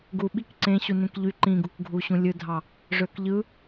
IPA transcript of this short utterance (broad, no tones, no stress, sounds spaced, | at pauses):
ɡ u ɓ i k ǀ ẽ ɕ u n ẽ k ʎ y ǃ ĩ ɡ u k ɡʱ u ɕ ũ lʲ ɯ dʱ ɑ | ʐ ø k ʎ ɯ